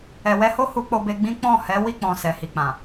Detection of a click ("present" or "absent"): absent